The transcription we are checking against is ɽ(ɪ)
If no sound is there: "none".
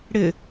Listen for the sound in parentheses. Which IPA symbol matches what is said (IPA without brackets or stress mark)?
ɪ